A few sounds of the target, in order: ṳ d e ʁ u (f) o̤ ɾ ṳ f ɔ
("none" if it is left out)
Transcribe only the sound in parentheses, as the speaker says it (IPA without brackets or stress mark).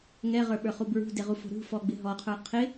f